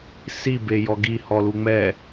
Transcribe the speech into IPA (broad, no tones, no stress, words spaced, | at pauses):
si bejɔɡi hɔluŋ͡mɛ